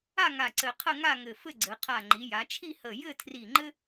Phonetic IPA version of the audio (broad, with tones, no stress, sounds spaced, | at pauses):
a˥˧ ŋ a˧˩ ǀ ɘ˧ qʰ ə˥˧ ŋ a˥˧ ŋ ɘ˧˩ f ɘ˥˧ ɡ͡ǀ ɘ˩˧ qʰ a˧˩ ŋ͡ǃ i˩˧ j a˩˧ t͡ʃʰ i˥˧ h ə˧˩ j ɘ˥˧ tʰ r i˧˩ ŋ͡ǃ ɘ˥